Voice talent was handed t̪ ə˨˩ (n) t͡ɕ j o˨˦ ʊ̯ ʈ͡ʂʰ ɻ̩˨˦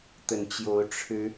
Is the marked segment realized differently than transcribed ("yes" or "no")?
no